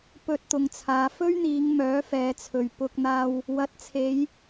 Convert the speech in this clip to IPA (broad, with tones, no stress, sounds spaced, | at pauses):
p ɵ˧ t̚ t̪ ʊ˨ ŋ t͡sʰ aː˨˧ f ɵ˥ ɥ n̪ iː˨˧ ŋ m œː˨˥ f ɛː˨˧ t͡sʰ ɵ˨ ɥ p ʊ˧ k̚ n̪ aː˧ w | w ɐ˨˥ t̚ t͡sʰ e˨˧ j